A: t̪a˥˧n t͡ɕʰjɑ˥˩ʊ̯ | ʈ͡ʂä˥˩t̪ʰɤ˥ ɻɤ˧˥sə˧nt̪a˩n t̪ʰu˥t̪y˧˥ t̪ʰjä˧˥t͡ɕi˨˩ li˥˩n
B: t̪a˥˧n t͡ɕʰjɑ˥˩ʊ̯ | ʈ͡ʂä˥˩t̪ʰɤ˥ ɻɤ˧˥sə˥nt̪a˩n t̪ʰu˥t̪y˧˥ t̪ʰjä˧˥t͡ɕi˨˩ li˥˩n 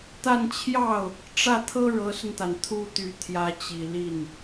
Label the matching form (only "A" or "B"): A